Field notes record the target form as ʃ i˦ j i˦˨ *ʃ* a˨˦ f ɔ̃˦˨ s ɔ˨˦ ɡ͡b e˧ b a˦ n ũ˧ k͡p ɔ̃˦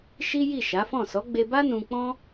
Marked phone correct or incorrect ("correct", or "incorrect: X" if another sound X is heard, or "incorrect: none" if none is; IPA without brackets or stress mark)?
correct